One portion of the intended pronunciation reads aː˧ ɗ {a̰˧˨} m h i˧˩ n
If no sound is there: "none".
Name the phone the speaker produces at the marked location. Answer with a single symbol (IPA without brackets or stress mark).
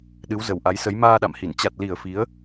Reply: a̰˧˨